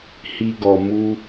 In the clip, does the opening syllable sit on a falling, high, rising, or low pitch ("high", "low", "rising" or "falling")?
high